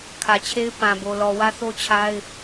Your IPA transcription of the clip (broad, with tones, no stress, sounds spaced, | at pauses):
kʰ ä˨ t͡ɕʰ e˦ ɪ̯ p ã˨ b o˨ l ɔ˨ w ä˦ θ o˦ t͡ɕʰ a˦ ɪ̯